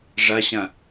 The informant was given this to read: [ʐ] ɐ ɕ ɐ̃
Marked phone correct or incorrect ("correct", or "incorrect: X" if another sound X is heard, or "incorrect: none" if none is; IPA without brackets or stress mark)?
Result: correct